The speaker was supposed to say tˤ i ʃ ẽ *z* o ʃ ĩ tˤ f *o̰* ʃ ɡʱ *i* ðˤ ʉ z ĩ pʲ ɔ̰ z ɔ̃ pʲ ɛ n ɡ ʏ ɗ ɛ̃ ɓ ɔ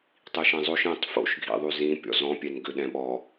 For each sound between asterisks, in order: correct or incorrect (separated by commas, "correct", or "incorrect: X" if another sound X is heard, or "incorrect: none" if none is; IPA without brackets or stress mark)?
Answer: incorrect: zˤ, correct, incorrect: ḭ